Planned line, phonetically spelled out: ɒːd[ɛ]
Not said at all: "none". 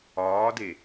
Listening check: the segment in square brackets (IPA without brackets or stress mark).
e